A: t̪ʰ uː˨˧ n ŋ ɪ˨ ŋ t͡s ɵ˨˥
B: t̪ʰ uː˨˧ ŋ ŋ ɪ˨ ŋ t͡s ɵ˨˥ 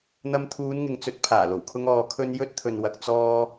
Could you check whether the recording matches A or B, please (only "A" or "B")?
A